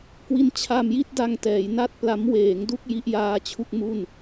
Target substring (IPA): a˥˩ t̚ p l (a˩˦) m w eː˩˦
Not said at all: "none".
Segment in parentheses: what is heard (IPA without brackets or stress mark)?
a˦˥